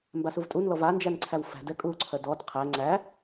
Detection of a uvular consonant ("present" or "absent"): present